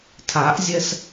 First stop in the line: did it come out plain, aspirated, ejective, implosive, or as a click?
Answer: aspirated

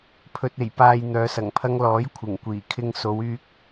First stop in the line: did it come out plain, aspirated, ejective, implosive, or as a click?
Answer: aspirated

